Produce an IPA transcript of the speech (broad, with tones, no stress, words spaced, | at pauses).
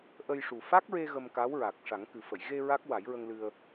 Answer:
ʔə˧jʂu˨˩ fa˦˥k̚ɹe˧ ɣə˧mka˧˥wɹa˨˩k̚ ʂa˨˩˦ŋkɨ˨˩fə˨˩˨j ɣe˧ ɹa˦˥k̚ wa˨˩˦jɹə˧ŋlɨ˧ə̯